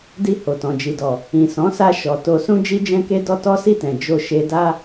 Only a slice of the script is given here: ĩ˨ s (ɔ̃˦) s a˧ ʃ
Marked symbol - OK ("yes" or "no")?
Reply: no